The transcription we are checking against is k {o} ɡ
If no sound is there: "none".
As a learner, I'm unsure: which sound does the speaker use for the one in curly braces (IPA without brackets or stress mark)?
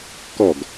ɔ